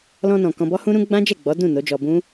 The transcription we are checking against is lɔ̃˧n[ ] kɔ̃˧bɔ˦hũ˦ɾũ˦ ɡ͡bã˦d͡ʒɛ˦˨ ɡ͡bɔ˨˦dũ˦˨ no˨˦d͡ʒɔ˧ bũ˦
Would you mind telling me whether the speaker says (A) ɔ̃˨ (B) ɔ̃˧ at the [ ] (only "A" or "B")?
A